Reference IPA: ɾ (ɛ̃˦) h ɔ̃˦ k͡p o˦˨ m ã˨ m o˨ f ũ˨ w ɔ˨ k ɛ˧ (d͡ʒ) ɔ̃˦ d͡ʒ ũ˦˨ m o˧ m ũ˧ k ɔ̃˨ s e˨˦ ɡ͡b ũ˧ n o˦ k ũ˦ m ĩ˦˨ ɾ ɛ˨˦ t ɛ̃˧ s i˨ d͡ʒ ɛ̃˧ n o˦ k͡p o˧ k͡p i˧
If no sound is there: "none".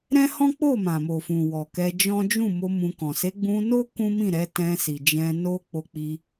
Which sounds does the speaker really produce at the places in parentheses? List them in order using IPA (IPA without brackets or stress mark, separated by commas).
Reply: ɛ̃˦, d͡ʒ